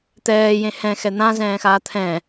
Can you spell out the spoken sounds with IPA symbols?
t̪ ɛː j ẽ h ɛ̃ x ɛ n̪ ã z ɛ̃ː x aː t̪ʰ ɛ̃

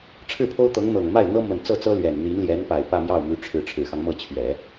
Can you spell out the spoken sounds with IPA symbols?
ʈ͡ʂʰ ɻ̩˥˩ pʰ o˥ ʊ̯ t̪ ɤ˧˥ ŋ n̪ ɤ˨˩ ŋ m a˥˩ ɪ̯ n̪ ɤ˥ m ə˨˩ n t͡s ɤ˥˩ t͡s ɤ˥ l ɥ ɛ˨˩ n n̪ i˧˥ n l j ɛ˧˥ n p a˨˩ ɪ̯ p ä˥˧ m j ɑ˥˩ ʊ̯ m y˧˥ ʈ͡ʂʰ ɻ̩˧˥ ʈ͡ʂʰ ɻ̩˨˩ x ɑ˦ ŋ m ɤ˥˩ t͡ɕʰ ɥ ɛ˨˩˦

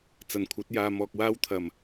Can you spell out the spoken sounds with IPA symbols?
t͡s ɐ˨˩ n kʷʰ ɐ˨˥ t̚ j aː˨ m ɔː˨ k̚ w aː˥ w t̪ʰ ɐ˨˩ m

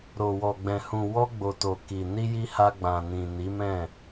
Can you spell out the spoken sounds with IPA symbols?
ɾ o˨ w ɔ˨ ɡ͡b ɛ̃˨ h ũ˨ w ɔ˧ ɡ͡b o˨ t o˨ k i˨ n i˧ j i˧ h a˧ ɡ͡b ã˨ n ĩ˨ n i˨˦ m ɛ̃˦˨

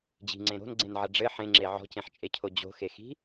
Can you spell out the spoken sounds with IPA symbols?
d͡ʑ i̤ ŋ͡ǀ ẽ ɾ o̤ n ɡ͡ǀ ẽ n ʕ ɐ ɖ͡ʐ ɘ ħ ẽ ŋ͡ǁ e ʕ ɔ̤ c ẽ ħ t͡ʃʼ e cʰ o d͡ʑ o̤ x e x i̤

